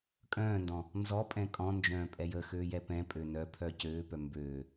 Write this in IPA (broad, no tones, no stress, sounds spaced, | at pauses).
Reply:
kʼ œ̃ː n d ɔ̃ | n z ɔ pʼ ɛ̃ kʼ ɔ̃ n d͡ʒ œ̃ː pʼ ɛ j ə x øː j ɛ p ɛ̃ pʼ ø n œ pʰ œ c øː p œ m b øː